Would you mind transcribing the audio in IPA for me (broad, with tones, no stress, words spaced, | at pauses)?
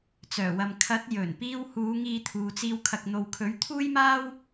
t͡sœː˨˩wɐ˨m kʰɐ˨˥t̚jɵ˨˩n piː˧whuː˨˧ ŋiː˧t̪ʰuː˨t͡siː˧w kʰɐ˨k̚n̪o˨wkʰɵ˨˥ɥ t̪ʰuː˥jmaː˥w